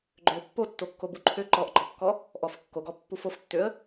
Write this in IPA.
ɡ͡ǃ ø pː o tː o kː o b u ǃʰ ø ǃ ɔ ʔ ɡ͡ǃ ɔ kː ɔ | ʔ ɔ f kː o ɡ ɔ pː u f o f tː ø ə̯

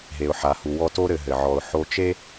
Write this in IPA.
ɦ e˩ ʊ̯ ħ a˩ h u˩ w ɔ˦ t o˥ ɾ ɘ˨ ɦ ɘ˩ ʕ ɔ˨ ʊ̯ ħ o˦ t͡ʃ e˥

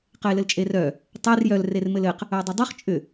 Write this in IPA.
q ɘ ɪ̯ l ɘ l t͡ʃʼ e r œ | tˤ ɛ r j œ l r e r m ɘ l ɘ q | œ dˤ ʏ dˤ œ χ t͡ʃʼ ʏ

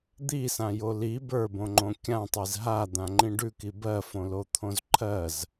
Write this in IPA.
d̪ i s ã j o l i b ə˞ b õ ŋ͡ǃ õ kʲ ã tˤ i z ɦ a d̪ ã ŋ͡ǃ ĩ ɖ ʉ k i b ɜ f õ l o t̪ʰ õ z ǃʰ ɜ z

